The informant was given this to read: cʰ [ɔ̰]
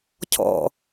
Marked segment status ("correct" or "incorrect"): correct